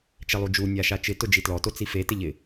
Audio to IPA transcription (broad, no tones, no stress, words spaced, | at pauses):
t͡ʃɛlˠud͡ʒu nʲaʃat͡ʃɪ tʊd͡ʒitlɔ tot͡sife tɪʎɪ